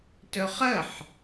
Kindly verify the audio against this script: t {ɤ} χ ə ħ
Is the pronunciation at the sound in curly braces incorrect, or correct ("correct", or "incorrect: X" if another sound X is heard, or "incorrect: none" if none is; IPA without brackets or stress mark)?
incorrect: ɵ